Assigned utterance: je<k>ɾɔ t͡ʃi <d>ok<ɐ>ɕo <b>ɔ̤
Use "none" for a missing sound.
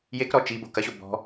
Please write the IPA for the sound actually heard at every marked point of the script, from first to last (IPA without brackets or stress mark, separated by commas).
k, b, ɐ, b